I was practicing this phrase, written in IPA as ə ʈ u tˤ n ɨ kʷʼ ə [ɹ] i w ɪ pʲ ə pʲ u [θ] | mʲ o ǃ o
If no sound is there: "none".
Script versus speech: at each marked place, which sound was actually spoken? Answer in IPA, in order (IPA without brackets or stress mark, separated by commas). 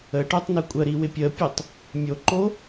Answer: ɾ, tˤ